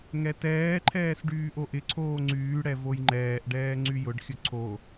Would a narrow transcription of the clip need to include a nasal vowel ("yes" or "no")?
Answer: no